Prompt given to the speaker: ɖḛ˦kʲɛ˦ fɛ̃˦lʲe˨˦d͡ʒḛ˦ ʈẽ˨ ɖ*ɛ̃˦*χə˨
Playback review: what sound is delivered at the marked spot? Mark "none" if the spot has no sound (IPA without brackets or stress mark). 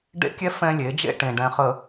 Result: ɛ̃˨